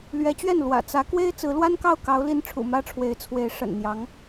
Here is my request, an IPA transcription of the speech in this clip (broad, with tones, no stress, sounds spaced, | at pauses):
l ɥ ɛ˧˥ t͡ɕ ɥ ɛ˥˩ n l w ä̰˨˩ t͡s ä˧˥ k w e˥ ɪ̯ t͡s ɹ̩˧˥ l w a˥ n k ɑ˥˩ ʊ̯ k ɑ˧˥ ʊ̯ l i˧˥ n ʈ͡ʂʰ ṵ˨˩ m ä˥ ʈ͡ʂʰ w e˧˥ ɪ̯ t͡sʰ w e˧˥ ɪ̯ ʂ ə̰˨˩ n n̪ j ɑ˧˥ ŋ